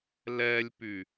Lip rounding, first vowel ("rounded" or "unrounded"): unrounded